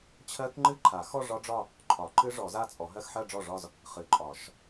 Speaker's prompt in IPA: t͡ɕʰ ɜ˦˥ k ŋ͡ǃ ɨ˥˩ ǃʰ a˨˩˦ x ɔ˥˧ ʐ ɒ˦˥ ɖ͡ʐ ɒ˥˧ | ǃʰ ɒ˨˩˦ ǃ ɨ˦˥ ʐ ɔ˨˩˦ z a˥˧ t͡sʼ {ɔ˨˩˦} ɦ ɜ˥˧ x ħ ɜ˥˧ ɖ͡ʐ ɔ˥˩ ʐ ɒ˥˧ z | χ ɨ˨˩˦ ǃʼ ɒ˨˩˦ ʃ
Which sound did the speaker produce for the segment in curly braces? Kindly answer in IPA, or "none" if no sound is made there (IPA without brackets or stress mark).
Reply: ɔ˨˩˦